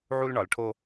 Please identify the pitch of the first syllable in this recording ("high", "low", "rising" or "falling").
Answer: high